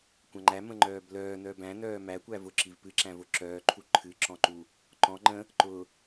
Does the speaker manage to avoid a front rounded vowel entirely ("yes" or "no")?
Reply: no